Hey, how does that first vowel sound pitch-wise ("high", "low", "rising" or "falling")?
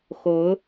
rising